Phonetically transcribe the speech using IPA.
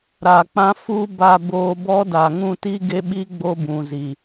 ɾ a˨ k͡p ã˦ f u˦ b a˨ b oː˨ b ɔ˦ d a˨ ŋ ũ˦˨ t i˦ ɡ e˦ ɓ i˦ ɡ͡b o˦ b ũ˨ z i˨

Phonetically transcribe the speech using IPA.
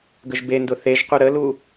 ɡ ə ʒ b e n d ʊ θ e ʒ q u ɾ ə l u

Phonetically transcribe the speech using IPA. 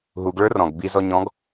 ɦ u ɡ ɭ ə˞ r ɔ̃ ɡ b i z ɔ ɲ ɔ̃ ɡ

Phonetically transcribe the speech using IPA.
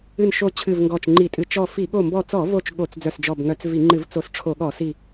ɨ˧˩ n ʃ o˧˩ t͡ɕʰ ɨ˧˩ v ŋ ɡ ɔ˧˩ t͡ʃ ŋ͡ǃ i˧˩˧ tʼ ɨ˧˩˧ t͡ʃ ɔ˧˩ f i˧˩˧ ɠ o˧˩ m b ɔ˧˩ t͡s ɔ˧˩˧ v o˧˩ t͡ʃ ɠ o˧˩˧ t͡s d͡z œ˧˩ s d͡ʒ ɔ˧˩ b ŋ œ˧˩˧ t͡s v i˧˩˧ ŋ͡ǃ ɨ˧˩˧ v t͡s o˧˩ s ʈ͡ʂʰ o˧˩˧ ɠ ɔ˧˩˧ s i˧˩

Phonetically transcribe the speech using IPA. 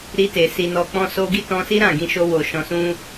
ɾ i˧ t e˨ s i˨ n ɔ˨ k͡p ɔ̃˧ s o˧ ɡ i˦ t ɔ̃˧ s i˦ ɾ ã˦˨ ɡ ĩ˧ ʃ o˧ w o˨ ʃ ɔ̃˧ s ũ˦

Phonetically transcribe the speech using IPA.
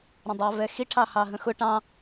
ɾ ə̃ dˤ ɑ v ɛ x i ʈʰ ɑ h ɑ ɦ ə̃ x ʊ ʈ ɑ̃

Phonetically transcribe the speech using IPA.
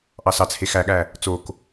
ʔ ɑ s ɑ t͡s h e x æ ɠ æ | t͡s o k

